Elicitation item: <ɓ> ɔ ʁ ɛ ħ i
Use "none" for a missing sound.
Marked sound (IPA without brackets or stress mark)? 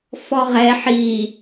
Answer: f